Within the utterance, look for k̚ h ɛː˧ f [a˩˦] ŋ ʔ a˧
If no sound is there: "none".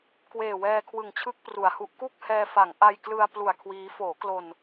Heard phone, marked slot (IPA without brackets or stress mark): a˩˦